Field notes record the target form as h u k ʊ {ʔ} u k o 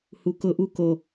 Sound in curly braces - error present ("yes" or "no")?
no